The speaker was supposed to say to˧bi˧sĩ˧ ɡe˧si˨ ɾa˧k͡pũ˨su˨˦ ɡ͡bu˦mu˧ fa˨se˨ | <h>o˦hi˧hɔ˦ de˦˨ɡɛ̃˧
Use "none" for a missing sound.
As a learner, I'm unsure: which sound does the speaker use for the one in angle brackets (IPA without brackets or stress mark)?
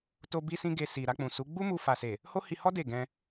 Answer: h